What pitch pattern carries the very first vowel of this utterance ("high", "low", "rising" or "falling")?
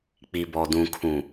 low